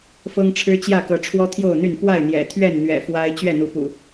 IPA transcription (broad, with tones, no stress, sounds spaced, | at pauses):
f ɤ˦ ŋ ʈ͡ʂʰ ɻ̩˦ t͡ɕ j ä˥˨ k ɤ˨˦ ʈ͡ʂʰ w ɔ˦ t̪ʰ j o˥˨ ʊ̯ n̪ y˥˨ n p w a˥˨ ɪ̯ n̪ j ɛ̰˨˩ t̪ʰ ɥ ɛ˥˨ n n̪ ɥ ɛ̰˨˩ f w a˦ ɪ̯ t͡ɕ ɥ ɛ˥˨ n̪ u˨˦ p ṵ˨˩